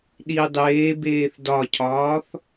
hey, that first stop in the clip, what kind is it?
implosive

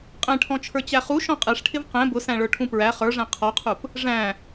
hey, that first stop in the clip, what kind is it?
ejective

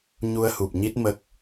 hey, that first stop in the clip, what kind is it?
plain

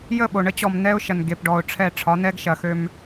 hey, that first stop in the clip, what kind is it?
implosive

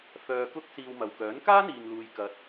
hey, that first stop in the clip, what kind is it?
plain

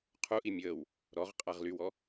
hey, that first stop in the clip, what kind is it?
aspirated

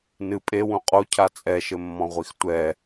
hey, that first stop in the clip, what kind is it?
ejective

